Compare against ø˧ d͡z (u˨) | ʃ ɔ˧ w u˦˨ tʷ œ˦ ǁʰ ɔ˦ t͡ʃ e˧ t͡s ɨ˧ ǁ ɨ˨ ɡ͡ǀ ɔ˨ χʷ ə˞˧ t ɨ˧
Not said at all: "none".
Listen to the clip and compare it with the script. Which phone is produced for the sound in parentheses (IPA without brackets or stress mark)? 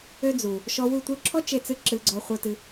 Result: u˨